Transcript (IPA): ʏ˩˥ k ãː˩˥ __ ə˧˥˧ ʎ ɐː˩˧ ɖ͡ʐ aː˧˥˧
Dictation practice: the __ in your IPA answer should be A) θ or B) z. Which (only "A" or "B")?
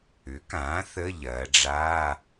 A